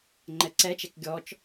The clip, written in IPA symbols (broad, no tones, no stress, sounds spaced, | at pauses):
ŋ͡ǃ ɛ ǀ ɛ t͡ʃ ɛ k ɡʲ ɔ t͡ʃ